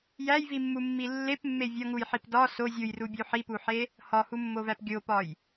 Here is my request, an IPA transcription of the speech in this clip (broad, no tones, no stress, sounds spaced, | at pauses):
j æ j v i mː u mː i lː e p mː e vʲ ɒ ŋ u j ħ i p d ɒ s o zʲ u j r u bʲ u ħ i p u ħ e | h ɒ h u mː o v æ p ɡʲ o p ɒ j